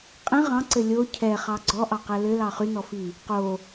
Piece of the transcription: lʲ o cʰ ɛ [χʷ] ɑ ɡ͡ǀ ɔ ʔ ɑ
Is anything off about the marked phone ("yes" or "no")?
yes